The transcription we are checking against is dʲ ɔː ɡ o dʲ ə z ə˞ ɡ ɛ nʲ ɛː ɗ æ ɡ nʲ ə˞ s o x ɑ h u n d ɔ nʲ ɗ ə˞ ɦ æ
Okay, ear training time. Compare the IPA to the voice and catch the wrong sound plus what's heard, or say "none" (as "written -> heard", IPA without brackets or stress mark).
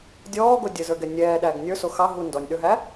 h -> ɦ